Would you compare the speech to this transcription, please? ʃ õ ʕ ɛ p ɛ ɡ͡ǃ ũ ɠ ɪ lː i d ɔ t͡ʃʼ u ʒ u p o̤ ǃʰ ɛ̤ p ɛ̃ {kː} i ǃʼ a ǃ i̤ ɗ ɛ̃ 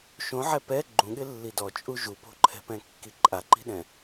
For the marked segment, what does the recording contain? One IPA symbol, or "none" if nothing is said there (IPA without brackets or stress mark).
kː